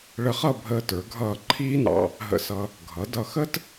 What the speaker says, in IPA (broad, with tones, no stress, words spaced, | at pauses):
ɭə˧χʌ˥˧bʱəː˧tə˞˩˧ ɡʱʌː˧˩ǃʰiː˥nɑ̰˧ | ɦə̰˧sʌ˧ | ɡʱʌ˩˧ dʌ˧˩xə˥t